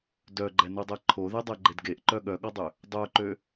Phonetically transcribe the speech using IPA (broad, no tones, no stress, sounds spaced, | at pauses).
d œ ɡ͡ǃ ɛ n u dˤ ɛ ǃʰ o ð e dˤ ɛ ɡ͡ǃ e d ɡ e ʔ ǃ œ ɠ œ ɠ ɔ dˤ ø | dˤ œ ǃ ø